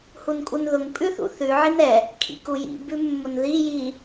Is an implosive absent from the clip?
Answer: yes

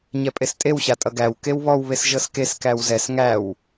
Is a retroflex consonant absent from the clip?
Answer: yes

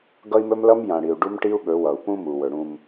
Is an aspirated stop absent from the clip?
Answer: yes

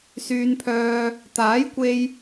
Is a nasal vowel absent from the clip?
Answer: yes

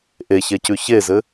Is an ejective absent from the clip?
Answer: yes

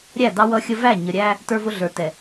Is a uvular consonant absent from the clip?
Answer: yes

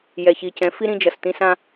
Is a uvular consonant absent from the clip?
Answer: yes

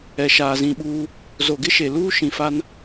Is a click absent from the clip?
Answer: yes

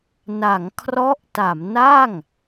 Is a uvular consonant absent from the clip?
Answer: yes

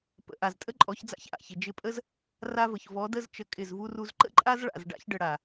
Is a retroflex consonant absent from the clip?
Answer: no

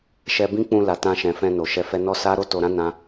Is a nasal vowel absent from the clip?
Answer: no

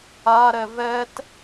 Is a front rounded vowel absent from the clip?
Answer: yes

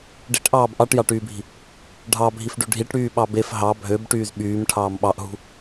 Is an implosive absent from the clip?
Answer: no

